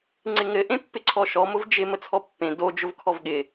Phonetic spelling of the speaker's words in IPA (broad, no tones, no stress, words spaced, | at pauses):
ŋ͡ǀɪŋɘ ʔẽpːɪǀʰɔʃɔ mʊvd͡ʒɪ mət͡sʰɔpːẽ do d͡ʒʊvkʰɔvɠɪ